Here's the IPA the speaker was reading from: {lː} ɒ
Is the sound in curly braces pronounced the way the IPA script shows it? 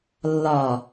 yes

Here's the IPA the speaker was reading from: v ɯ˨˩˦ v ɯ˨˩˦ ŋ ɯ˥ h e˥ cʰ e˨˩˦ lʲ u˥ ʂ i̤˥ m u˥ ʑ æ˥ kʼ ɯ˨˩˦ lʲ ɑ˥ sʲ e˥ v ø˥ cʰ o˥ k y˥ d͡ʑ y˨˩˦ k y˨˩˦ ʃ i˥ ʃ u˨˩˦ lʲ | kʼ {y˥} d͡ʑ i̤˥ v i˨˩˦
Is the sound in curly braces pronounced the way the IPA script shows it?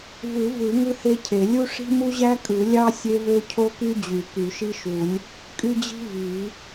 yes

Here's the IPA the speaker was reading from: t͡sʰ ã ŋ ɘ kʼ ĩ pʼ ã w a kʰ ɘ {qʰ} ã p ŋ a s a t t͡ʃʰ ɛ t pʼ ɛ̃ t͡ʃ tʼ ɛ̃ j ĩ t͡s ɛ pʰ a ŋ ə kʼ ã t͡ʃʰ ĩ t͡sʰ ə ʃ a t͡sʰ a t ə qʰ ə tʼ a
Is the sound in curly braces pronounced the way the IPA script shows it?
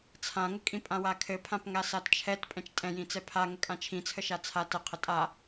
no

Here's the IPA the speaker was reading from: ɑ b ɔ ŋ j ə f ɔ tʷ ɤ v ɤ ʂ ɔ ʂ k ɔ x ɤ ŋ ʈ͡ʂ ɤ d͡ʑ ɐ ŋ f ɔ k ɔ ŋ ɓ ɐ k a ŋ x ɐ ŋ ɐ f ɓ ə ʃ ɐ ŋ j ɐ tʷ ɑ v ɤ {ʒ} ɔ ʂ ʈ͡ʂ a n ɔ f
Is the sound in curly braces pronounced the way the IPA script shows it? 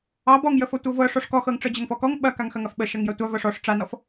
no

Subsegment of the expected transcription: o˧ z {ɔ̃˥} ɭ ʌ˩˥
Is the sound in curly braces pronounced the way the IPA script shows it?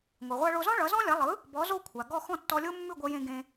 yes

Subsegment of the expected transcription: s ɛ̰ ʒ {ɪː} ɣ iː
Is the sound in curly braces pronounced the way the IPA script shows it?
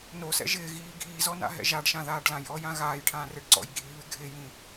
yes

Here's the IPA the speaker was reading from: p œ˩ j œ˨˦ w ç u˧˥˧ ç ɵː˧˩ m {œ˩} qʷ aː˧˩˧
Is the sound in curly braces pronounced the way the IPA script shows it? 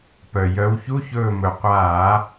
no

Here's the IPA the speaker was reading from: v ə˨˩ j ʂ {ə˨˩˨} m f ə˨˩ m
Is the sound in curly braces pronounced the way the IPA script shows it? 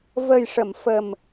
yes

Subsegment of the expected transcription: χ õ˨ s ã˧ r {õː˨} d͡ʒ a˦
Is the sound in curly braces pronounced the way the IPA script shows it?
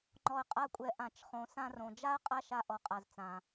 no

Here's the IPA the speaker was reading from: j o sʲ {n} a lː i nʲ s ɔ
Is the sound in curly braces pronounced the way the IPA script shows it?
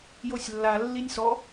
no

